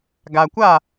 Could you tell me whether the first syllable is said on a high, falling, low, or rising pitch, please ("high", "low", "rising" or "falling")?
low